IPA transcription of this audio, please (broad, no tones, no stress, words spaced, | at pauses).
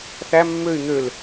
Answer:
θæ mːøy̯ n̪øl